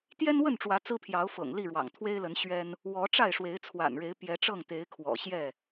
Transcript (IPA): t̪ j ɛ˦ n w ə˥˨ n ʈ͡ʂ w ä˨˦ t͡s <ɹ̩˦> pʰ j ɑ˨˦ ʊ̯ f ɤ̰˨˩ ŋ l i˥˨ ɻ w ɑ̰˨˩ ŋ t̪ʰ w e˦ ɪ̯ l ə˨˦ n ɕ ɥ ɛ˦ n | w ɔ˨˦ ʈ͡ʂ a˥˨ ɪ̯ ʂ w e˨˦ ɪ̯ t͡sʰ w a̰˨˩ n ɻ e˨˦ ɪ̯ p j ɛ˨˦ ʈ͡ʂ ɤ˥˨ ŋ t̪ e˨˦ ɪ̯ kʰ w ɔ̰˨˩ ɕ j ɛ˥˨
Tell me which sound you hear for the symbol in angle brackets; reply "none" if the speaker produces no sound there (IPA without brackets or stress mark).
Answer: ɹ̩˦